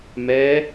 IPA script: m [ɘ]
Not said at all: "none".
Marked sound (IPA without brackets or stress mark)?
ɛ